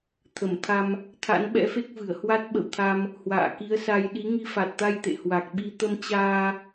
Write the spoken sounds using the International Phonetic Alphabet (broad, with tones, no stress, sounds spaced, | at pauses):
t̪ʰ ə˧˩ m t̪ʰ a˧ m | t̪ʰ a̰˧˥ n ɓ ɛ̰˧˥ f e˦˥ k̚ v ɨ˧˩ ə̯ h w a˦˥ t̚ ɓ ə̰˧˨ w t̪ʰ a˧ m | h w a̰ː˧˨ k i˨˦ ə̯ s a˧ j ɗ i˨˦ ŋ i˧ f a˨˩ t̚ t̪ a˧ j t̪ ḛ˧˨ h w a˨˩ k̚ ɓ i˧ t̪ ə˧ m t͡ɕ aː˧